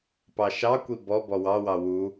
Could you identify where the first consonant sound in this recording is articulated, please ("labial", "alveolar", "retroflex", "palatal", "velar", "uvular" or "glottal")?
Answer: labial